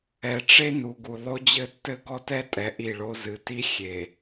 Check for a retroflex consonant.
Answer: present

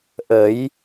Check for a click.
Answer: absent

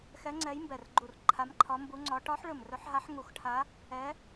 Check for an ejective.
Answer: absent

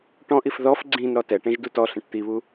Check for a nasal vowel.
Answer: present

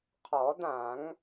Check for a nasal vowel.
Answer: present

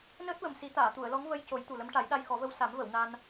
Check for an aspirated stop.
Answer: absent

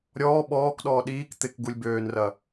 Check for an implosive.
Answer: present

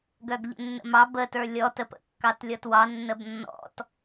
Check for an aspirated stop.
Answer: absent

